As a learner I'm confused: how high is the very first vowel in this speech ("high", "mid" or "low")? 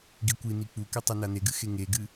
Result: high